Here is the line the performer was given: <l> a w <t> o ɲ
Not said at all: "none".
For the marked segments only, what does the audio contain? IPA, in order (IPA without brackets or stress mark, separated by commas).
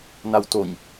n, t